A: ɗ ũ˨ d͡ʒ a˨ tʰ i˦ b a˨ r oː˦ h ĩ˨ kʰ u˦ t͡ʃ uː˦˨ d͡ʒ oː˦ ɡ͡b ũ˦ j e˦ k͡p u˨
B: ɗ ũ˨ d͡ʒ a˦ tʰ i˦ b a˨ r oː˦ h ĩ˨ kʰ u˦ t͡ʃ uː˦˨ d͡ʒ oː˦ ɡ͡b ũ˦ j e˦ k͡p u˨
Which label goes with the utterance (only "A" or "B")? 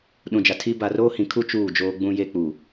A